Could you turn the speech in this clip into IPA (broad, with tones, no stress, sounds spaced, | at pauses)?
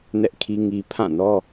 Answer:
n ɛ˦ ʔ kʰ i˦ ŋ i˦ pʰ ã˦˨ n ɔ˦